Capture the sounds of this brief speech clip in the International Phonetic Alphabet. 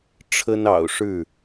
ʈ͡ʂʰə˦nɑ̰˨˩ʊ̯ʂɻ̩˥˨

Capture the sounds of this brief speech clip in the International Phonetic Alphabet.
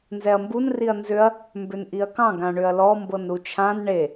nzɛɐ̯mbun riɐ̯nzʏɐ̯ | mbʏnʔiɐ̯kɑ̃ ɡãɳʏɐ̯lɔ mbɤnɾut͡ʃʰãn ɳe

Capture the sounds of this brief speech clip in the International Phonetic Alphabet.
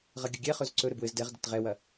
ʁɐɡʲəɡʲɛχɵz ǀɵɾɘb wɘz dɛʁdət ʁɛwɐ

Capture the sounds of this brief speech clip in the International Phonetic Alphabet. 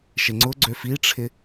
ʃɪŋ͡ǀʊɡ͡ǀø fiʈ͡ʂʰɪ

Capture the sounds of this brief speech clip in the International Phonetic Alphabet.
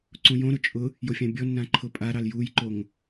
ǀũjõɾʊ t͡ʃʼʊ | jofʲɑ̃bʲɔnːã ǃʰʊpʼaɾɑl jujǃoŋ

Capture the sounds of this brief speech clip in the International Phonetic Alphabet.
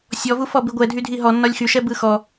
sʲɔvufɔ biɡʷɛ dʱydʱiɦɔ nːɒlʲxyʃɛ bɯxɔ

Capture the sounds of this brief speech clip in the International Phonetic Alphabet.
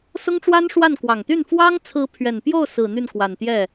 sʊ˥ŋʈ͡ʂwa˥nʂwa˥˩n kwɑ˨˩ŋt̪y˥˩n fwɑ˥ŋ t͡sʰɹ̩˧˥pʰɥɛ˨˩npjo˥˩ʊ̯sɹ̩˨˩ n̪y˥˩nkwa˨˩nt̪jɛ˥˩

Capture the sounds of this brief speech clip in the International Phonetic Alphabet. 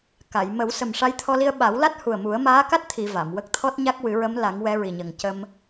ka˨˩˨j mə˨˩˦w sə˨˩mʂa˧˥jt̪ʰɔ˧li˧ə̯ ɓa˨˩˦wla˦˥t̚hu˨˩ə̯ mu˨˩˦ə̯maː˧˥ka˦˥t̚ t̪ʰi˨˩˨ va˨˩˨mwə˦˥k̚ t̪ʰɔ˦˥t̚ɲa˦˥k̚wɨ˨˩˦ɹə˧˥m la˨˩˦ŋwɛ˧˥ɹi˨˩ɲə˨˩ŋ cə˧m

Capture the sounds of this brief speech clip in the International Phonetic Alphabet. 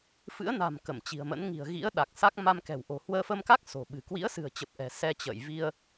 fɨ̰˧˥ə̯na̤˨˩m kə˧˩mt͡ɕi̤˨˩ə̯mə̰˧˥n ŋi̤˨˩ə̯ɣḭ˧˥ə̯ɗa˨˩k̚sa˦˥k̚ ma˧mkɛ̤˨˩w ʔo̤˨˩hwəː˧fə˧mka˦˥k̚ so̤˨˩ɓɨ̤˨˩ kwḭ˧˥ə̯sɨ̤˨˩ə̯t͡ɕə˨˩p̚ ʔɛ̤˨˩sɛ˧t͡ɕə̰ː˧˨j vi˧ə̯

